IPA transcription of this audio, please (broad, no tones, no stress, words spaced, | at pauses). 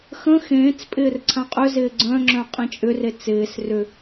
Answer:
xə̃ xẽːt͡spʼɪːr ǀʰãqʼʏzɪː ɡ͡ǀœ̃ŋ͡ǁœ̃ qʼĩt͡ʃʼʏre t͡sɪːs rʏ